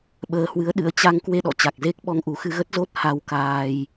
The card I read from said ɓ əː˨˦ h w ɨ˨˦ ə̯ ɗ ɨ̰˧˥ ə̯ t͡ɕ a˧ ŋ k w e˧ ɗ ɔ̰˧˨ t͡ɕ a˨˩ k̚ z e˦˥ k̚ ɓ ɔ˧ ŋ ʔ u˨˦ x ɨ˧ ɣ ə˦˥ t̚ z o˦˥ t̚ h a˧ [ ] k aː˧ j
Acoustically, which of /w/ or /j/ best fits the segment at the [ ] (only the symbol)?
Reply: w